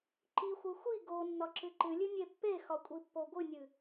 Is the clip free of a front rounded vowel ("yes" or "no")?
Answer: yes